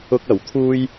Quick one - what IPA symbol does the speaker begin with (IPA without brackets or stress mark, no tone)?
ʊ